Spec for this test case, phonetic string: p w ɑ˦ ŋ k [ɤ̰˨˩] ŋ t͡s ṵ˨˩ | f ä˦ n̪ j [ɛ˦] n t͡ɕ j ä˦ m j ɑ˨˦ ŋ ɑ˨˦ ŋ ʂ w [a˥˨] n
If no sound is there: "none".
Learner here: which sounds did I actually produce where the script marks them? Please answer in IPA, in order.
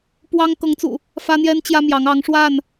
ɤ˨˦, ɛ˦, a˥˨

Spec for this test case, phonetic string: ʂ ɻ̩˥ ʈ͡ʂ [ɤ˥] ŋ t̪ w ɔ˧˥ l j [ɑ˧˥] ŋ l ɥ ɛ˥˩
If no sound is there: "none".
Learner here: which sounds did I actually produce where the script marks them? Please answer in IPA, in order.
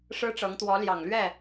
ɤ˧˥, ɑ˨˩

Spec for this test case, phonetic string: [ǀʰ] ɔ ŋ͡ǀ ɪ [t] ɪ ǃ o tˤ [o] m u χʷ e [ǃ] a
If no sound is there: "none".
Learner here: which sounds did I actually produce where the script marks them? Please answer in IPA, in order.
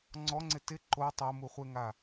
ŋ͡ǀ, t, o, ŋ

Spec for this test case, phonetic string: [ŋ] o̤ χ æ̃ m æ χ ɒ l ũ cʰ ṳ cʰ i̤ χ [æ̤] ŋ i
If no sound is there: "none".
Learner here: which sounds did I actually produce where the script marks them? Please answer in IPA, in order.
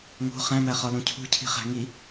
ŋ, æ̤

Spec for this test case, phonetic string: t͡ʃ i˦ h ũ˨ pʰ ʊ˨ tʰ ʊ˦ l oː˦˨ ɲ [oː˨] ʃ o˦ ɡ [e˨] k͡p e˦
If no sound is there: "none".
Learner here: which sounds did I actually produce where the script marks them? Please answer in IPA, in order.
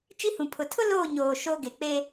oː˨, e˨

